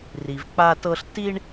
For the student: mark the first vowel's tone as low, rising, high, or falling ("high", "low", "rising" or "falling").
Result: low